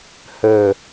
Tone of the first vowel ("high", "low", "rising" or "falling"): falling